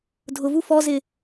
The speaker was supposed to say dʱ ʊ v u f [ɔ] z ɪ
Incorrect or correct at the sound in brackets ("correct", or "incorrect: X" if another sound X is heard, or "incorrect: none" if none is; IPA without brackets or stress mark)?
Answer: correct